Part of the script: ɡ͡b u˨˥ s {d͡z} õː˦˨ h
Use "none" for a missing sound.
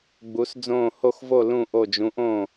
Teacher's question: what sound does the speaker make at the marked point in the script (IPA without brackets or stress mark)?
d͡z